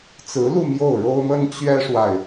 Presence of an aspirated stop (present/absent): absent